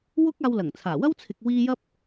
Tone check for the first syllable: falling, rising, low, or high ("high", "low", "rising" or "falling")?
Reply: high